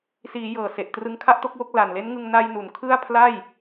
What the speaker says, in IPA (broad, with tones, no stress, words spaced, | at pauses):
siː˩˦ jɤː˨˩se˨˩ʔ trɯ˧ŋkʰa˥˩ʔto˥˩k̚wo˥˩k̚ la˨˩nle˦˥nŋɯ˧ŋ na˧jnu˩˦n kʰɯ˥˩a̯ pʰla˥˩j